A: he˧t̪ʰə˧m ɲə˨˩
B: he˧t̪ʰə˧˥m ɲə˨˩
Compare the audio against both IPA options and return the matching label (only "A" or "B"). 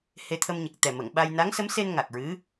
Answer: A